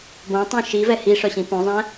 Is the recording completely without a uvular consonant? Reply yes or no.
yes